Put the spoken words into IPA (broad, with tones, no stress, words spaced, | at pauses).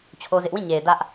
t͡ɕʰo˦zɪ˦ʔ wĩ˦˨ ɲe˨ɪ̯ dä˦ʔ